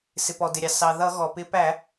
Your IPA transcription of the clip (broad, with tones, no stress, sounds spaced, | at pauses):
s ɪ˩ p ɔ˩ d ɪ˩ ɾʲ ɑ˩ s ɑ˩ ð ʌ˧˩˧ ɣ ɔ˩ p ɪ˧˩˧ p æ˧˩˧